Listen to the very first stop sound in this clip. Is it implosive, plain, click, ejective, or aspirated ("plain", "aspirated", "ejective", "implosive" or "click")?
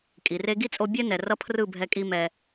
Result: ejective